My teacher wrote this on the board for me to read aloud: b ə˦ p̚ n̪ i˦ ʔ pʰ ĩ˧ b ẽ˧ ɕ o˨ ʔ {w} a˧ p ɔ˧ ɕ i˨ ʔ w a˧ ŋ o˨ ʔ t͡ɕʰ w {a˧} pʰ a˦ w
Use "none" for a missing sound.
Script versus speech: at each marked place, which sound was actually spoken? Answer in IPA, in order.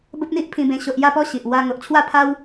j, a˥˧

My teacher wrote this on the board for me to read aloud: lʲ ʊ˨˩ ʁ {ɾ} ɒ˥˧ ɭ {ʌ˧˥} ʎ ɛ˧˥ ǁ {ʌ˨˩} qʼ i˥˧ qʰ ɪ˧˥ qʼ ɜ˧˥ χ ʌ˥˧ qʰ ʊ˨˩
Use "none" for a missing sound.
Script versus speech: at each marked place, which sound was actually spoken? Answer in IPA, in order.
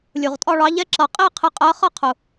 tʼ, ɑ˧˥, ʌ˨˩

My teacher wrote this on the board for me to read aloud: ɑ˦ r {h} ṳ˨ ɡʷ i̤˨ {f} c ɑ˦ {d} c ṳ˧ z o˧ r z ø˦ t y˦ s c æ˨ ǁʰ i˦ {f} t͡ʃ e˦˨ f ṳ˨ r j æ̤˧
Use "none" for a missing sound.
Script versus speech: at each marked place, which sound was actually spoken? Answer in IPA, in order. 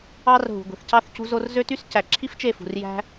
ɦ, θ, θ, f

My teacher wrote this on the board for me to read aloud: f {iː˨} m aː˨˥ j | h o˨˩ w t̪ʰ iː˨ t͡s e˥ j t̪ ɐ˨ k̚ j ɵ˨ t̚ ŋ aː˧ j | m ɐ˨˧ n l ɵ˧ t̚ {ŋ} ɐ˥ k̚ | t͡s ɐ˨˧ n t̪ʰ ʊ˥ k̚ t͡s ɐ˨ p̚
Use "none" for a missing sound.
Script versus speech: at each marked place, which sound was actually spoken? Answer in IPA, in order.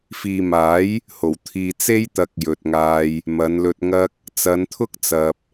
iː˨, ŋ

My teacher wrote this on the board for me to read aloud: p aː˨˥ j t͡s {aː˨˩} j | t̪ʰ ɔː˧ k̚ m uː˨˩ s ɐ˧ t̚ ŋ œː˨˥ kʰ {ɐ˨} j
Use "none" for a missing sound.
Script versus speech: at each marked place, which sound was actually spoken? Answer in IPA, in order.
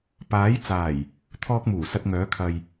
aː˨˩, ɐ˨

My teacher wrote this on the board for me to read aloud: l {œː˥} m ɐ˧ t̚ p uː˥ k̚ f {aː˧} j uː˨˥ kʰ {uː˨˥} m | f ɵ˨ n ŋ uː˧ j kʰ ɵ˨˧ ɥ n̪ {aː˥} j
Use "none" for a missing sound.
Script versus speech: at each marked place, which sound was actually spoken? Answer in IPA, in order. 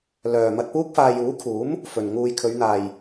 œː˨, aː˧, uː˨˥, aː˨

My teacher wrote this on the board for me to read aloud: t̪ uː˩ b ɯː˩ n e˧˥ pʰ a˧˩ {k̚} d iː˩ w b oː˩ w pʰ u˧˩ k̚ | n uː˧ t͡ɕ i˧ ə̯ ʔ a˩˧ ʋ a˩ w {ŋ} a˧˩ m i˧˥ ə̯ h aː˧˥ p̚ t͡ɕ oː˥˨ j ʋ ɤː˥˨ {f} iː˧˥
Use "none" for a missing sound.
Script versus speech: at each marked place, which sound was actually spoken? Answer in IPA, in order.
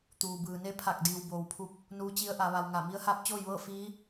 k̚, ŋ, f

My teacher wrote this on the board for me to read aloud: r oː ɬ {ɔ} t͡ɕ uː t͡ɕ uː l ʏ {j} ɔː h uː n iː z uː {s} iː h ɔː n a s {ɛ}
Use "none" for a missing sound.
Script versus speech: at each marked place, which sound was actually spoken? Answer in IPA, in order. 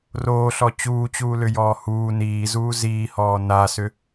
ɔ, j, z, ʏ

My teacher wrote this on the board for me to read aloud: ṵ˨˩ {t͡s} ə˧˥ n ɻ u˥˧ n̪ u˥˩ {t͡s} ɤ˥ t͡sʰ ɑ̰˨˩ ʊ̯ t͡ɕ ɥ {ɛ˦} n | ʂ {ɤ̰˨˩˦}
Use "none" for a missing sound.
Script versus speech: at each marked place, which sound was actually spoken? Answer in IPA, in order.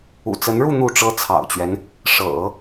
t͡s, ʈ͡ʂ, ɛ˦, ɤ̰˨˩˦

